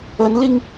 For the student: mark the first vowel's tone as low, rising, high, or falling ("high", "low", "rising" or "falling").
rising